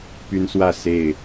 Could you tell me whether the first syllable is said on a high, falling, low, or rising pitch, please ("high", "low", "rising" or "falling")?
high